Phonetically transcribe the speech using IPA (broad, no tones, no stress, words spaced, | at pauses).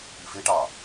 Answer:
ifeʈɑ